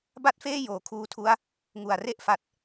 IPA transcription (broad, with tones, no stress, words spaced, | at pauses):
ba˥˩t̚feː˥˩ joː˩˦kʰuː˧tʰu˦˥a̯ | ŋu˨˩a̯re˥˩ʔfa˨˩t̚